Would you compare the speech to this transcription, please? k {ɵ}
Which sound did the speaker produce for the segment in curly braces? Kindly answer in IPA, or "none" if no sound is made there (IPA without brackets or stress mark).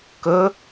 ɵ